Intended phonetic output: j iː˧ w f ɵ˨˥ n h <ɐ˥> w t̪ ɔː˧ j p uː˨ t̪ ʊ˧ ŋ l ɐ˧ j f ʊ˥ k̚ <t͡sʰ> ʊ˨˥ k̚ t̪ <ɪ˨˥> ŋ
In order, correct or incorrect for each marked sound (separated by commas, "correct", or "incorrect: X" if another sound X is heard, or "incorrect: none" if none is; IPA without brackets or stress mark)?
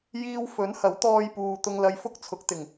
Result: incorrect: ɐ˨˥, correct, incorrect: ɪ˨˩